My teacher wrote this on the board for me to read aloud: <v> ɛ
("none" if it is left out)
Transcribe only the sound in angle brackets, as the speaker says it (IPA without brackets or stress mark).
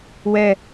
w